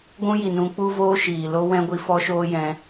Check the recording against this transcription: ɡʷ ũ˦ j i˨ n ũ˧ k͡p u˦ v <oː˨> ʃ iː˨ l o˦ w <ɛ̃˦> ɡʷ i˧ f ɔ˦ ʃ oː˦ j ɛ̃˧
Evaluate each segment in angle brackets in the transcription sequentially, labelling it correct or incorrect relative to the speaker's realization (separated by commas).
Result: incorrect, correct